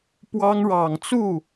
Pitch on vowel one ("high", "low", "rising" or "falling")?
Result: high